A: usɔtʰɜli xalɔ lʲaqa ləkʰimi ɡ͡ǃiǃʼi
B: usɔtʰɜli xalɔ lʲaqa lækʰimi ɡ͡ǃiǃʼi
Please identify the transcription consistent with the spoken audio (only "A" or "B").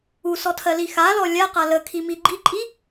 A